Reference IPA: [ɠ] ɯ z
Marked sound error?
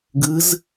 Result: yes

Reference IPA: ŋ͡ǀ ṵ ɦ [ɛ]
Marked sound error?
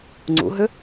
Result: yes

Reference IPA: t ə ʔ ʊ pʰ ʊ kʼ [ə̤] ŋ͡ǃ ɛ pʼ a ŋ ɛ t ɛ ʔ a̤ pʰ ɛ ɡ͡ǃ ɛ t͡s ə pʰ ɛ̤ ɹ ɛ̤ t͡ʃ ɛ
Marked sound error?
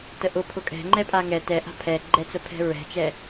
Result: yes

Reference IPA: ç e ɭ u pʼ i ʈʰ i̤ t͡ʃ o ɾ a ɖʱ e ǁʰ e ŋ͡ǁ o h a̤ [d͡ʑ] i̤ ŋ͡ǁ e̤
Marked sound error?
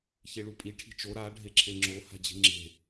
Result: no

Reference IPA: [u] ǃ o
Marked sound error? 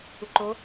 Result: no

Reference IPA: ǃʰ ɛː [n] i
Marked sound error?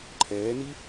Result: no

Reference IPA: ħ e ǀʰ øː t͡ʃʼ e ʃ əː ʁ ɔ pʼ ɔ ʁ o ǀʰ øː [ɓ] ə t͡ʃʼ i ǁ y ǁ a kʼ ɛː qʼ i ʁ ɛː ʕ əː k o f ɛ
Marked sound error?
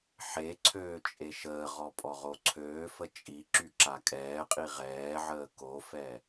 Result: yes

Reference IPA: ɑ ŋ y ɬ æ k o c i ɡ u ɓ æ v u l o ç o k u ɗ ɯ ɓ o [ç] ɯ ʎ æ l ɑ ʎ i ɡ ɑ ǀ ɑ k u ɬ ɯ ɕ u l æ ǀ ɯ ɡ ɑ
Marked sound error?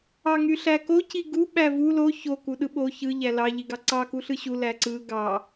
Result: no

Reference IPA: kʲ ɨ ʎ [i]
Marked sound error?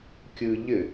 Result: yes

